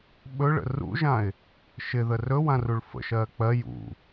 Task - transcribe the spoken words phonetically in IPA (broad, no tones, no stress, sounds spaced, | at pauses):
ɓ ɵ ɭ ə̰ r ṵ ʒ ã ɪ̯ | ʃ ɪ ð ə r ɵ w ã r u ɭ f ə̰ ʃ ɜː k͡p ɜ j ṵ